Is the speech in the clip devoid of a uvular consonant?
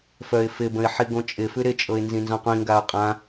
no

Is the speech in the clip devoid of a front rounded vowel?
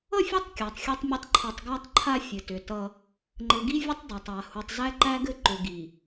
no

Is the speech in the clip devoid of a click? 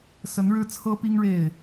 yes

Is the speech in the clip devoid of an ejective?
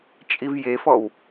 no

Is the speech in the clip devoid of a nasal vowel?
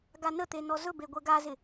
yes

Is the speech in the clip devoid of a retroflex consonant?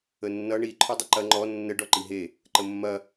no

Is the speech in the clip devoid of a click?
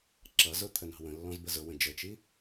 no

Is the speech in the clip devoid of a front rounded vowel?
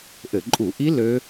no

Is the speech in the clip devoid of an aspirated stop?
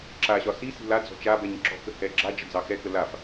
yes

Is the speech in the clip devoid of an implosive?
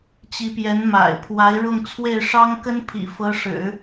yes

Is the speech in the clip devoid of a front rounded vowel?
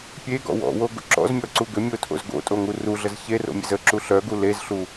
no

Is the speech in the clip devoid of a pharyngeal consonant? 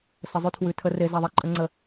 yes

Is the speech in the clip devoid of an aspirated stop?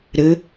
yes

